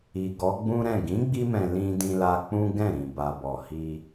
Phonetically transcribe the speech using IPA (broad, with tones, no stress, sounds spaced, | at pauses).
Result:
i˨ ɡ ɔ˨˦ ɡ͡b ũ˦ ɾ ɛ̃˦˨ ɡ ĩ˨˦ ɡ͡b i˧ m ɛ̃˨ l ĩ˧ d ĩ˧ l a˧ k͡p ũ˦ ɡ ɛ̃˦˨ ɾ ĩ˨ b a˨ b ɔ˨ h i˧